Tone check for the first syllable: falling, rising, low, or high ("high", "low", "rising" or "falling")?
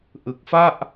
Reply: low